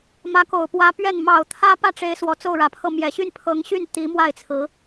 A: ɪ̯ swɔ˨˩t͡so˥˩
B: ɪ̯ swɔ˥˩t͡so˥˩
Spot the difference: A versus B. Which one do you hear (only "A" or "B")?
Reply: A